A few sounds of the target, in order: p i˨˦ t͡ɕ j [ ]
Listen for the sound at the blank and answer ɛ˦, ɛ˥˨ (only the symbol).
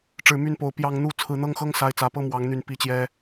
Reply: ɛ˦